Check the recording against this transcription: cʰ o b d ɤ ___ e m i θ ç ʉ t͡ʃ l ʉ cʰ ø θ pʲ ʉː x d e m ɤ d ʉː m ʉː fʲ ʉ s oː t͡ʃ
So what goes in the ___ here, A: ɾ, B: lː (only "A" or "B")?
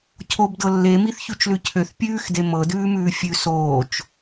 B